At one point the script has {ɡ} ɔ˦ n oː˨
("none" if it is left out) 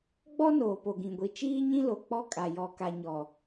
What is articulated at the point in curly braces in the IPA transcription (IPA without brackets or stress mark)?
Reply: ɡ͡b